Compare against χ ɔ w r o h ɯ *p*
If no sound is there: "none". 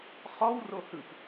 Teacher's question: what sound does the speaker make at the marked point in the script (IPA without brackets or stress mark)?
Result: p